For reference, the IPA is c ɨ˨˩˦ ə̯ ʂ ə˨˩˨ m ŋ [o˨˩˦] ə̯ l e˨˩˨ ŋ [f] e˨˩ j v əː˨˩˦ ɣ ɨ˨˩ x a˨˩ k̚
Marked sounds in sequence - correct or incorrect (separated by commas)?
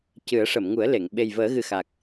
incorrect, incorrect